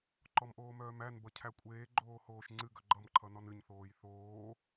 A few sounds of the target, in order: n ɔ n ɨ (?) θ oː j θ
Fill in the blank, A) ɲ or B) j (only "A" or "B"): A